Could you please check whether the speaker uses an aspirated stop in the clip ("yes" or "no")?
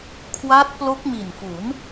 yes